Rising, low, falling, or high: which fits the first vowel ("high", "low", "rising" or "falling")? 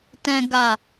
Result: low